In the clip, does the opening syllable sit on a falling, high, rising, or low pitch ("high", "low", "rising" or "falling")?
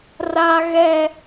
low